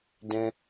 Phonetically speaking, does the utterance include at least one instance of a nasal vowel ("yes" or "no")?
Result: yes